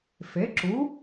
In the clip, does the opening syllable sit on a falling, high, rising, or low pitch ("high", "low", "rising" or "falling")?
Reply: rising